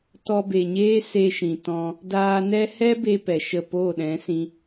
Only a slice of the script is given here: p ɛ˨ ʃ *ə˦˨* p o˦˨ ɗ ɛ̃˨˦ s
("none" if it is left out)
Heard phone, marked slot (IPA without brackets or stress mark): ə˦˨